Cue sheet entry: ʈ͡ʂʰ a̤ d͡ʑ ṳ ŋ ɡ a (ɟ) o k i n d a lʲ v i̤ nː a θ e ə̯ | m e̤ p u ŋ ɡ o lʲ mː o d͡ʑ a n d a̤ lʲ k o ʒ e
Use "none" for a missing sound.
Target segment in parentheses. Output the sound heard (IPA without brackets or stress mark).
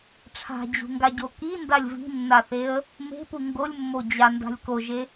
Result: ɟ